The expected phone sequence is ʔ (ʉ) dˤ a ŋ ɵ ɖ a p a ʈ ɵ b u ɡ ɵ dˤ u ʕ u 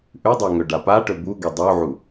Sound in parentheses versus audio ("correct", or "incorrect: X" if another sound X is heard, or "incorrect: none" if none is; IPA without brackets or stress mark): correct